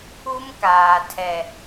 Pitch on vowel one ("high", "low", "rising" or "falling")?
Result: high